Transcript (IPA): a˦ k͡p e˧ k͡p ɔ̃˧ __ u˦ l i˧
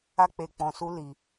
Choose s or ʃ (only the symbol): s